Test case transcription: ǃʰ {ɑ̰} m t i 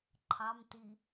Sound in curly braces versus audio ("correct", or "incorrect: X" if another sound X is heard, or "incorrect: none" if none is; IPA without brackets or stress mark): incorrect: ɑ